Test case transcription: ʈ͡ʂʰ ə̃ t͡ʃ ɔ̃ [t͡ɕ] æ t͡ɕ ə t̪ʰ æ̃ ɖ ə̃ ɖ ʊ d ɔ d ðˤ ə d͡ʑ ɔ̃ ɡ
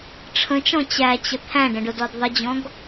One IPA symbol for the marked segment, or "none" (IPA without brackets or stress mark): t͡ɕ